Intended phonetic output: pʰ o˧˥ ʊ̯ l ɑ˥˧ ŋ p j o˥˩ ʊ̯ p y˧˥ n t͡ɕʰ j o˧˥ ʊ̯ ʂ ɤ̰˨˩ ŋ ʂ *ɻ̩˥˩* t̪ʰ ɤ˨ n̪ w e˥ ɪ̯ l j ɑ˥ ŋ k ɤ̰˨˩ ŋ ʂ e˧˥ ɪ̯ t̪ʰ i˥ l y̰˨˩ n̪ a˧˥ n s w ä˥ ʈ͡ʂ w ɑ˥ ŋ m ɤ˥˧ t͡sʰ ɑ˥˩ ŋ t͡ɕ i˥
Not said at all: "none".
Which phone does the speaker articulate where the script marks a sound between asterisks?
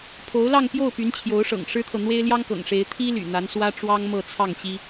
ɻ̩˥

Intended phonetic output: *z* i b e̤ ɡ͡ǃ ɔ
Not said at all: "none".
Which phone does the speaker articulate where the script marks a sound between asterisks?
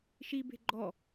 ʃ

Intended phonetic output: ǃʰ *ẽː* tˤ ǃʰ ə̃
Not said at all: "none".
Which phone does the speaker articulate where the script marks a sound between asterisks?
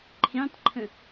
ẽ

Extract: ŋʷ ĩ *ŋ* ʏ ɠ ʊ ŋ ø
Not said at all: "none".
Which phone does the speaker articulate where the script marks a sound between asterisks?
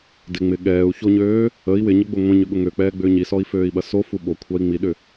ɲ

